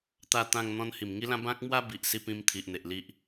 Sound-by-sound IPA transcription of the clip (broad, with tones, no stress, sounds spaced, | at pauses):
t̪ a˥˧ t̪ ã˥˧ ŋ n̪ ɔ̃˦ n h i˨˩ m ŋ i˦ l ã˦ b ã˦ k̚ m w a˦ b i˨ ʔ s i˥˧ p ĩ˦ m t̪ʰ i˨ ʔ n̪ e˨ ʔ l i˦ ʔ